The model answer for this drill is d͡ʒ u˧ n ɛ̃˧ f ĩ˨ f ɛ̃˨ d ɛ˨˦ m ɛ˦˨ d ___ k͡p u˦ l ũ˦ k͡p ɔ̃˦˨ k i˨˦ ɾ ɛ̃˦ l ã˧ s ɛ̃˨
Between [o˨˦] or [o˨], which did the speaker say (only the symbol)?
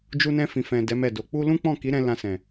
o˨˦